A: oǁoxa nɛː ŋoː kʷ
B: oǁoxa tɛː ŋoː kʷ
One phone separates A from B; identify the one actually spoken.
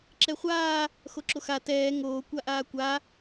B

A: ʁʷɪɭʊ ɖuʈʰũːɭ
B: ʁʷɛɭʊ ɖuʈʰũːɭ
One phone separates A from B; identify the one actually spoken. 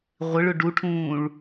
A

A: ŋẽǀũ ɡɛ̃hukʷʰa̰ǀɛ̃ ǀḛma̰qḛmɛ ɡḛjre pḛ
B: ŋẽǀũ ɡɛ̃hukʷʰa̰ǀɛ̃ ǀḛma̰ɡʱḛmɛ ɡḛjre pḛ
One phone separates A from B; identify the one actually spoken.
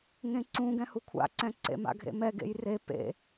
B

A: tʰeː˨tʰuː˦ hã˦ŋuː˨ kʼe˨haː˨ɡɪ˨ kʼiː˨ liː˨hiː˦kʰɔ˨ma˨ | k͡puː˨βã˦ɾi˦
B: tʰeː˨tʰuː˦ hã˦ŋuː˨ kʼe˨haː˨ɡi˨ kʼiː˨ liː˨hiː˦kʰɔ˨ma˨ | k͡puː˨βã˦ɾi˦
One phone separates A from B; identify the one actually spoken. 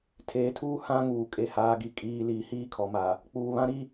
B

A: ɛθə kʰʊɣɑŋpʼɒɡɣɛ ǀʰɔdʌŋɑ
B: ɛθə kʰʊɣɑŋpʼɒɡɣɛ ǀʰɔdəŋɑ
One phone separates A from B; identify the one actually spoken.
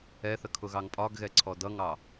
A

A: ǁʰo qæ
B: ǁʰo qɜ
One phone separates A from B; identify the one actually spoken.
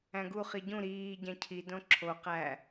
A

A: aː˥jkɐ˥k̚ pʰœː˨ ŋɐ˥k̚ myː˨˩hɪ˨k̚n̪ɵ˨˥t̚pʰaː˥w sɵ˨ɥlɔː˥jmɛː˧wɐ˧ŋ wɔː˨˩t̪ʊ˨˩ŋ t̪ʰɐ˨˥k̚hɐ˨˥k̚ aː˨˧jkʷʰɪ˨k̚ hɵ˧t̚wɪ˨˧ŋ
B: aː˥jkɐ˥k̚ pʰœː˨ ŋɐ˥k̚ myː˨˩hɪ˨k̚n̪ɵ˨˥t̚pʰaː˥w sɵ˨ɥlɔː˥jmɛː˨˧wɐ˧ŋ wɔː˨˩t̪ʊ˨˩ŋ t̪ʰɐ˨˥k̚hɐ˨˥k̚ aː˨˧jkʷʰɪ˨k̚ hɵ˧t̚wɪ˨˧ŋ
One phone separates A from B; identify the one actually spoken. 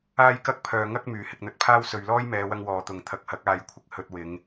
B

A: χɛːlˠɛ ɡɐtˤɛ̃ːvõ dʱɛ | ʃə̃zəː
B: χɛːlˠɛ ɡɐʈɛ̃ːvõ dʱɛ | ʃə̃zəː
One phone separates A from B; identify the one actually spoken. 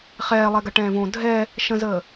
B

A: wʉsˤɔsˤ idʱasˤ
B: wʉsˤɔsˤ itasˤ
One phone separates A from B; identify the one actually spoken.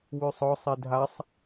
A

